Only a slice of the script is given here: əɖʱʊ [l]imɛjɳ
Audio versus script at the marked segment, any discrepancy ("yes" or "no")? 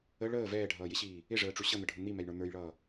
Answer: yes